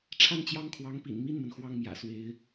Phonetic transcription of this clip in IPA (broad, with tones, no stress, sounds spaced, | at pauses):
ʈ͡ʂʰ a˥˩ n t͡ɕ j ɑ˥ ŋ kʰ w ɑ˧˥ ŋ p ḭ˨˩ n m i˥˩ n m ə˩ n x w ɑ˥˩ ŋ m j ä̰˨˩ s w e˧˥ ɪ̯